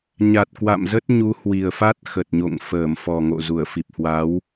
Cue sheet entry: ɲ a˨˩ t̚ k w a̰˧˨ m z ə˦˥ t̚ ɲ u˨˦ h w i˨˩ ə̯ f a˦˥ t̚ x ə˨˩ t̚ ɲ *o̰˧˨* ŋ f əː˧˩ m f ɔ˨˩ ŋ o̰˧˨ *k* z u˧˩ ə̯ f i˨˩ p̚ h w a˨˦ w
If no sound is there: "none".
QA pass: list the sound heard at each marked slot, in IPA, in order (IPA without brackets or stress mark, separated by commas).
o̰˧˨, none